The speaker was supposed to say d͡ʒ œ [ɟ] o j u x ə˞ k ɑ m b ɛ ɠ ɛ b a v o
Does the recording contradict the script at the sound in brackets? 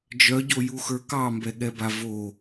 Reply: no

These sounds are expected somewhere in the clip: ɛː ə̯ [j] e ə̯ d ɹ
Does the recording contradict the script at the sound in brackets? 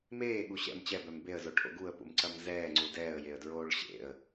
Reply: no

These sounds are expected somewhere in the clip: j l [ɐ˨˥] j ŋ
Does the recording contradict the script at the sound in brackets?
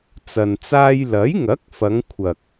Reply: no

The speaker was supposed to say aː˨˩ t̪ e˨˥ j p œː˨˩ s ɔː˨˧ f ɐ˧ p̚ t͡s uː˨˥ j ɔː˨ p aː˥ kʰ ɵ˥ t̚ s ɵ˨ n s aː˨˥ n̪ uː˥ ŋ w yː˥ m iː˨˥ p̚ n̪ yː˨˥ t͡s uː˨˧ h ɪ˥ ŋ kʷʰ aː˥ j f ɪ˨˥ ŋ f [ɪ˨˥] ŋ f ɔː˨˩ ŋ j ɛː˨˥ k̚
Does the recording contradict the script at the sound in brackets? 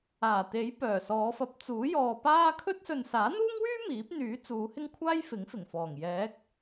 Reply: yes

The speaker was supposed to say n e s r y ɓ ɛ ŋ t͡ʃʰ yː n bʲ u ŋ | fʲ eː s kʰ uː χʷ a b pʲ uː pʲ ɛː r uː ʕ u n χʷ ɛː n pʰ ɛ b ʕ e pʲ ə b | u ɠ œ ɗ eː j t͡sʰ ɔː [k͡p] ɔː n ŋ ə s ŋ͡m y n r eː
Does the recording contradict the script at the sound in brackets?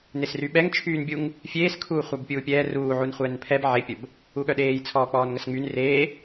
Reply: no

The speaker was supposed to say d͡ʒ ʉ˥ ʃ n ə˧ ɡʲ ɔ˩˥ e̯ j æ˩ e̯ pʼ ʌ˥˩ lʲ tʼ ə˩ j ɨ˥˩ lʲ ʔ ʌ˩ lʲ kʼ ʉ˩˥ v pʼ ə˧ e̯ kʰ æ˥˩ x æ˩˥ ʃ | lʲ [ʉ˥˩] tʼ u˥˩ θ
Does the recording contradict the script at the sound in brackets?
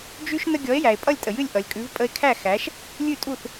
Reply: no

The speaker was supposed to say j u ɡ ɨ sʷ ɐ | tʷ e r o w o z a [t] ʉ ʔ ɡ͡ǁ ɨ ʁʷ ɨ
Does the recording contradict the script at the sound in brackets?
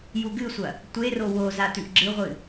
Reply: no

